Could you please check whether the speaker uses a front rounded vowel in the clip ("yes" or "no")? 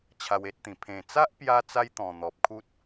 no